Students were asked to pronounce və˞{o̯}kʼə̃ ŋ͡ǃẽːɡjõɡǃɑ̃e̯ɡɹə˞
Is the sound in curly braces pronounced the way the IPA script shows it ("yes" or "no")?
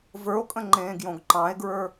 yes